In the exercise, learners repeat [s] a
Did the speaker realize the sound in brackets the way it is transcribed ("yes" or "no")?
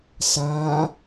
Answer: yes